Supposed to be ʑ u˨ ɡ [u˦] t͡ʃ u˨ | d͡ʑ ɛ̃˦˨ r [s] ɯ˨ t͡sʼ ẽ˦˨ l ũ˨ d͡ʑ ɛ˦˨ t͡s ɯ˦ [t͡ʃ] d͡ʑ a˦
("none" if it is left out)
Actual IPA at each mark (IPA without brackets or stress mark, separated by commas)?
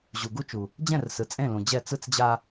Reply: u˦, s, t͡s